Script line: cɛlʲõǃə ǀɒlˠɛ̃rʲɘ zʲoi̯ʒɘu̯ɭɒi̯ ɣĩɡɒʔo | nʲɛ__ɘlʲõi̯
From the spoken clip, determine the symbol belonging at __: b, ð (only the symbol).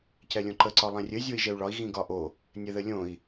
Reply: ð